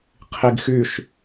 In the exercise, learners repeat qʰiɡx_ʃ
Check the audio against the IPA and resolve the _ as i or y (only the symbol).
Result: y